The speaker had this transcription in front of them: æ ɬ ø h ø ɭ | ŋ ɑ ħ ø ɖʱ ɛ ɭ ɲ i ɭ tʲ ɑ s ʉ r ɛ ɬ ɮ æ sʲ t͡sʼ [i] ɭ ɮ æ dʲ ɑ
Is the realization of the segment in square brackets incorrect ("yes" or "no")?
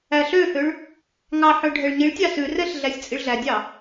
no